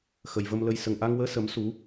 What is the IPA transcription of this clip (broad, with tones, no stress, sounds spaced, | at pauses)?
x ə˨˩ j v ə˧ m l ə˧ j s ə˨˩ ŋ ʔ a˧ ŋ w əː˧˥ s ə˨˩˦ m s u˨˩˦